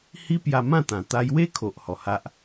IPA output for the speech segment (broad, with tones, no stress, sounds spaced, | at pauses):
h i˦ p j a˧ m ã˥˧ t̪ ã˨˩ t̪ a˧ j w e˦ kʰ o˨ ʔ h ɔ˨˩ h a˦ ʔ